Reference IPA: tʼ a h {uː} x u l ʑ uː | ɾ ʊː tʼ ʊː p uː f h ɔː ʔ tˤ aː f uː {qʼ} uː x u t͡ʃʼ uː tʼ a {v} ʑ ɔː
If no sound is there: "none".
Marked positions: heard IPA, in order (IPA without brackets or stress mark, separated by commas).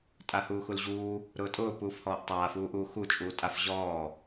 uː, ʔ, f